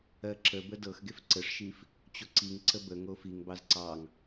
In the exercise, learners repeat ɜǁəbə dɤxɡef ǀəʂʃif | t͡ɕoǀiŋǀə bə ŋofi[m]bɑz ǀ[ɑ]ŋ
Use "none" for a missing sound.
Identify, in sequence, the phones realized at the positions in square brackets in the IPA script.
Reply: ŋ, ɑ

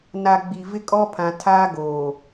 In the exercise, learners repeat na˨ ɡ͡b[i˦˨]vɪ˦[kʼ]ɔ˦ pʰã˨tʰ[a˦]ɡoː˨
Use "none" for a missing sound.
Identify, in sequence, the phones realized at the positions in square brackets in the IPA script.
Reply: i˨, kʼ, aː˦

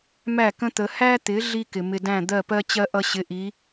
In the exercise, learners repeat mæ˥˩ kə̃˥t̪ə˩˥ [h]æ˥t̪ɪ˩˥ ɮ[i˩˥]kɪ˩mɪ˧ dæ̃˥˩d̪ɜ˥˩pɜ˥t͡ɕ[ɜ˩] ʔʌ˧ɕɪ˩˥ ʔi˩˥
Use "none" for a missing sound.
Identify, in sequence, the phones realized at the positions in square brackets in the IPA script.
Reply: h, i˥, ɜ˥

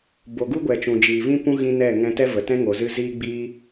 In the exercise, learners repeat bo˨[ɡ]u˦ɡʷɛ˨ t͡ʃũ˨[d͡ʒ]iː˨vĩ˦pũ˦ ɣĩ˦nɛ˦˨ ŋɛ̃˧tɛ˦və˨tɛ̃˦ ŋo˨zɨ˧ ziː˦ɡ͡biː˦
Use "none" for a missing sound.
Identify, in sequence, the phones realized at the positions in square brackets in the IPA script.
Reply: ɡ, d͡ʒ

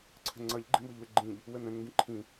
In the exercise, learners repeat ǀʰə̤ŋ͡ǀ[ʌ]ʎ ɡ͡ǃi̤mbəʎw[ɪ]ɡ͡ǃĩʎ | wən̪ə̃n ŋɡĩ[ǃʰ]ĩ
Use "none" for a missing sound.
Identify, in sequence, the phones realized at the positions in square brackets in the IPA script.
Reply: ʌ, ɪ, ǃʰ

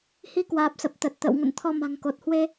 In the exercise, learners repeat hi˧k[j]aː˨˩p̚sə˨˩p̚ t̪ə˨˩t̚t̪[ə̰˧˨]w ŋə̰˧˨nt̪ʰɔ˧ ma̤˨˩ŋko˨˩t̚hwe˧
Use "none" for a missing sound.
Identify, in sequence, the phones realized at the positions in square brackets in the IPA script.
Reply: w, ə̰˧˨

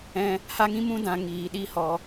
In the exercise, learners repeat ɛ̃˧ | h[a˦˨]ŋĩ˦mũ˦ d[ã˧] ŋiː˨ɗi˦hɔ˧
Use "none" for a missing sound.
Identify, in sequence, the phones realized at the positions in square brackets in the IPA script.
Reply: a˦, ã˧

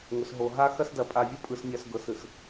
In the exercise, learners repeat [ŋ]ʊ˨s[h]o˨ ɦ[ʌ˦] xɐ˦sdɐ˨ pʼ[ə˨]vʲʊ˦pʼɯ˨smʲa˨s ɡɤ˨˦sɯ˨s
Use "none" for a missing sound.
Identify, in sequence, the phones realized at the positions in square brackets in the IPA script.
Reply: ŋ, ɦ, a˦, a˨

